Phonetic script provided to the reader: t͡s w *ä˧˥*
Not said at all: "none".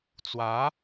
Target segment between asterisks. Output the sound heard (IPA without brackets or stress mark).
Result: ä˧˥